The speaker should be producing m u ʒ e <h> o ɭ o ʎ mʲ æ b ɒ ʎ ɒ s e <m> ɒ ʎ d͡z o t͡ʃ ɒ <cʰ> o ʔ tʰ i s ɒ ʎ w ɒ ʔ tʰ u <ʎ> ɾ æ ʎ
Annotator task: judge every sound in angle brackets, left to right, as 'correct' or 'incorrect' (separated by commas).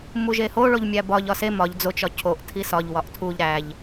correct, correct, correct, correct